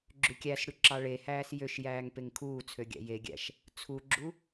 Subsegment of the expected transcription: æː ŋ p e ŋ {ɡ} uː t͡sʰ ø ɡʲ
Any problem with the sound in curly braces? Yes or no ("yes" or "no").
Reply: yes